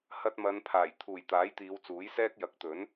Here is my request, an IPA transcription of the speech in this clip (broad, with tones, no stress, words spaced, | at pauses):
hɐ˧t̚mɐ˨˧npʰaː˨˩j t̪ʰuː˨˩j t̪aː˨˥jt̪iː˨˧wt͡suː˨˥jsɛː˥k̚ jɐ˨˥k̚t̪ɵ˨˥n